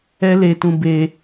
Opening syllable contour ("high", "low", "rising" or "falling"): high